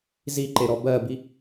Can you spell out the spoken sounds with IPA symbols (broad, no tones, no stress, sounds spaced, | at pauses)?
z i ǃ e ɾ ɔ b ɜ b i